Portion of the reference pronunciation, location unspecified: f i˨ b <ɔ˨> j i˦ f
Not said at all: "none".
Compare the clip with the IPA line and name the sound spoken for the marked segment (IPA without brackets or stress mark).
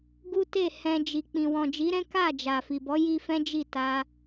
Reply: ɔ˨˦